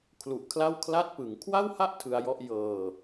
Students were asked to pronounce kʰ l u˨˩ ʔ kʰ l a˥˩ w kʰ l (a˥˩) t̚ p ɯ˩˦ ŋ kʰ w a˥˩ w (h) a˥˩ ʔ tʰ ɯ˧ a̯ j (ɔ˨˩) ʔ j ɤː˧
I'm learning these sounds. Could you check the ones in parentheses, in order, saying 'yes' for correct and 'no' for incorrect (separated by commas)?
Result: yes, yes, no